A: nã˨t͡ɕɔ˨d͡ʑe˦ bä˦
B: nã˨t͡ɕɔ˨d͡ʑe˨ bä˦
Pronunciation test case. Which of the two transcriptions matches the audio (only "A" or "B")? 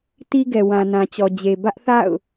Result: B